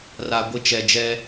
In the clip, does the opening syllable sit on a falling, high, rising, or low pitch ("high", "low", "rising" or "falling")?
low